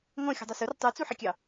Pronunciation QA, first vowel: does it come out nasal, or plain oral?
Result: nasal